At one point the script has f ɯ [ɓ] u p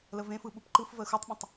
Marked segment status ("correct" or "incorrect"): correct